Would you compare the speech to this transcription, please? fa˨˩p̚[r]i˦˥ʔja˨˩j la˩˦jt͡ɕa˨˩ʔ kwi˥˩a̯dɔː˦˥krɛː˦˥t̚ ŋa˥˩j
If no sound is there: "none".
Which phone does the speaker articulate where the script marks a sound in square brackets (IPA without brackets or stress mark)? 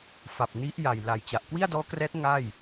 n